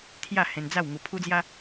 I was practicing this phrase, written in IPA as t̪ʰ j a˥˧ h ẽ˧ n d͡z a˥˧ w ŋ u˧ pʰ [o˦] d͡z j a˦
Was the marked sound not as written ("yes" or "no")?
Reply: yes